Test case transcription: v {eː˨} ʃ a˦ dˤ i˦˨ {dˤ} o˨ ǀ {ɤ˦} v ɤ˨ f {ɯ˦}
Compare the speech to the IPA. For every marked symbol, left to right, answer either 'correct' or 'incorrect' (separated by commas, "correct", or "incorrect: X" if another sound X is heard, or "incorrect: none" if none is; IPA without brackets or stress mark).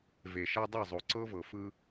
incorrect: e˨, incorrect: zˤ, correct, correct